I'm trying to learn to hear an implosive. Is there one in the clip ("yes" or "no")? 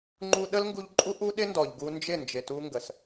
yes